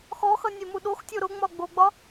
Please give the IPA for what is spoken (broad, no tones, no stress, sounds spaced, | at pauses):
x ɔ x ʌ nʲ e m u ɗ o x tʲ o ɾ ʊ ŋ͡m ɒ ɡ͡b o ɡ͡b ɒ